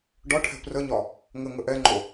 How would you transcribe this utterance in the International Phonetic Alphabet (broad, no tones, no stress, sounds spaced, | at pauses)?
ɖ ɒ ʈʰ ɛ̤ p r ə ɲ ɒ | ŋ ə ŋ ə ʔ ɛ ŋ͡ǃ o